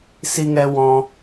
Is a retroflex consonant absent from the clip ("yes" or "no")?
yes